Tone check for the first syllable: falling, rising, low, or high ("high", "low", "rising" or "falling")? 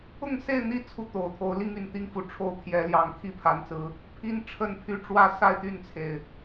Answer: falling